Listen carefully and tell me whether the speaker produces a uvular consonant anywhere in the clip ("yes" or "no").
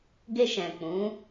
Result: no